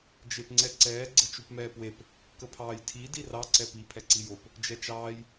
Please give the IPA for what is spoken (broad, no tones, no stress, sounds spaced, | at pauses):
d͡ʒ e p ŋ͡ǀ ɛ ǀ ɛː ɡ͡ǀ ɘ t͡ʃ u p m ɛː p w e p | k ə pʰ ɑː j tʰ i d i r ɑ ǀ ɛ p i pʰ ɛ ǀ i j o p | d͡ʒ ɛ t͡ʃ ɑː j